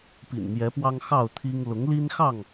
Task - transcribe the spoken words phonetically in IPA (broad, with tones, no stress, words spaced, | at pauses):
pḭ˨˩nmjɛ˨˦pwɑ˦ŋ xɑ˥˨ʊ̯t̪ʰi˦ŋ lʊ˨˦ŋli˦nxɑ˥˨ŋ